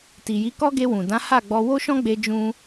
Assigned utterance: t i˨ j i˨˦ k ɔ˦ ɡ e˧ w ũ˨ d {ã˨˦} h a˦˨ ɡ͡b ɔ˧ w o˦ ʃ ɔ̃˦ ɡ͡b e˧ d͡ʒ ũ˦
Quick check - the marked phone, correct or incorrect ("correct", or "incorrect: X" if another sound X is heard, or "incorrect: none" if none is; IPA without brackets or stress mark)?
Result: correct